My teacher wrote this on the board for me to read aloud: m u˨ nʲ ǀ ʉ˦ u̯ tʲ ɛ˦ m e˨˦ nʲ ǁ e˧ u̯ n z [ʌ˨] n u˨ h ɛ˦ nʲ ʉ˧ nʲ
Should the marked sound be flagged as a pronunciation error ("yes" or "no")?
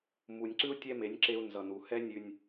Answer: no